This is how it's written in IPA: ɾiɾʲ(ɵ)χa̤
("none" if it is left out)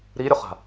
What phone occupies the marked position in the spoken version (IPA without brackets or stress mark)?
o